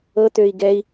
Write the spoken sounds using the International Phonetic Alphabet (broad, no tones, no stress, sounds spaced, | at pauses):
ɤ t̪ ø i̯ ɡ ɛ i̯